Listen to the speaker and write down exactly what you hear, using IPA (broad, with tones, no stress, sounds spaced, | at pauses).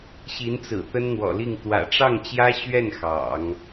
ɕ i˧˥ n t͡s ɹ̩˨˩ t̪ ə˥ n n̪ w ɔ̰˨˩ l i˥˩ ŋ t̪ w ä̰˨˩ ʈ͡ʂ ɑ˥˩ ŋ t͡ɕ j ä˥ ɕ ɥ ɛ˥˩ n x ɑ̰˨˩˦ ŋ